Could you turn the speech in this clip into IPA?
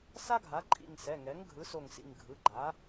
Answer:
s a˥ ɡʱ a˩˥ ǃʼ ḭ˧˩ ŋ s ɛ˩˧˩ ŋ ɛ˩˥ ŋ ɡʱ ɯ˩˥ s o˧˩ ŋ s ḭ˧˩ ŋ ɡʱ ɯ˩˧˩ ɡ͡ǃ a˩˥

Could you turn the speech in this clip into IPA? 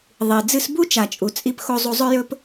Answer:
ðˤ i˨ d͡z ɨ˧ s b u˦ t͡ʃ a˨ t͡ʃʼ u˨ t͡sʼ i˧ p x o˧ zˤ u˧ zˤ ɵ˦ j ɵ˦ p

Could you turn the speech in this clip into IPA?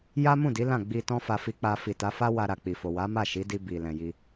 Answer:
j a˦ m ũ˦˨ d i˨˦ l ã˦˨ ɡ͡b i˧ t ɔ̃˦ f a˧ f i˧ k͡p a˧ f i˨ t a˨˦ f a˦ w a˧ ɾ a˨ k͡p i˨ f o˨ w a˨˦ m a˦˨ ʃ i˨˦ d i˧ b i˨ l ɛ̃˨ j i˧

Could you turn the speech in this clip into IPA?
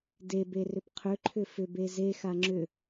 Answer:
d e b e r ʏ p qʰ ʏ ǃʰ ʏ f ʏ b e z e x a ŋ͡ǁ ʏ

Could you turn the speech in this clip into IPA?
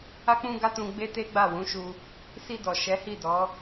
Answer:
a˧ k͡p ũ˧ ɡ a˦ t ũ˧ ɡ͡b e˦ t e˦ ɡ͡b a˦˨ w ũ˨˦ ʃ u˧ | s i˧ d ɔ˨ ʃ ɛ˨˦ h i˦˨ d ɔ˨˦

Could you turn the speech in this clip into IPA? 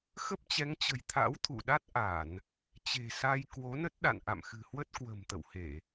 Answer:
x ə˦˥ p̚ t͡ɕ ɛ˨˦ ŋ t͡ɕ ə̤˨˩ j t̪ʰ a̰˧˥ w t̪ʰ ṵ˧˨ ɗ a˦˥ t̚ ʔ a˧˩˨ n | t͡ɕ e̤˨˩ s a˧ j k w o˨˦ n ə˦˥ t̚ ɗ a̰˧˨ n ʔ a̰˧˨ m x ɨ̤˨˩ h w ə˦˥ t̚ k w ə̤˨˩ m t̪ ə̰˧˨ w h e˧˩˨

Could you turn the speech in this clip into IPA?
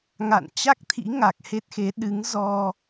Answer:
ŋ a̰˧˨ n t͡ɕ a˦˥ k̚ t̪ʰ ḭ˧˥ ŋ a˨˩ k̚ h e˦˥ t̚ x e˨˦ ɗ ɨ˨˦ ŋ z ɔ˧

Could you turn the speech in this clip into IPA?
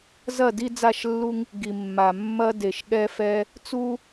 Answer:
z ɐ˦˨ d i˦ d͡z a˦˨ ʃ lː u˦ ŋ | ɡ i˨ mː a˨ mː ɐ˦ d e˨ ʃ ɠ ɛ˦ f ɛ˦ | t͡s u˦

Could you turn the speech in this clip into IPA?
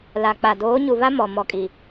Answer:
l a˨ k͡p a˨ d oː˨˦ ɲ u˨ β a˦ m ɔ˨ m ɔ˨ kʼ i˨

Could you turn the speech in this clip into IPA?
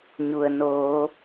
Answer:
ɲ u˩ ə̯ n oː˩˧

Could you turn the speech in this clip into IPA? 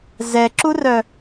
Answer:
z ɛ ǁ u r œ

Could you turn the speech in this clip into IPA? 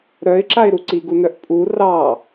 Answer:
ɾ œ ɪ̯ ǁ a ɪ̯ ɾ u ǀ i ɡ u n œ ʔ pʼ u r ɑ

